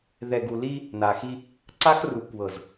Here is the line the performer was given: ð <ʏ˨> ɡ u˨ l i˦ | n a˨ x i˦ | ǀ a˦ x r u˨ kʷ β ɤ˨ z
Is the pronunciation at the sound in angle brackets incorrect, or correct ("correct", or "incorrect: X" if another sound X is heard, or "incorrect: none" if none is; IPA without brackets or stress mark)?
incorrect: ɛ˨